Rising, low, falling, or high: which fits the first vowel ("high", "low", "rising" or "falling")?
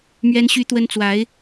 high